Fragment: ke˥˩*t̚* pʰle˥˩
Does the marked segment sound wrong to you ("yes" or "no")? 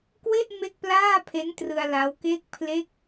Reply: yes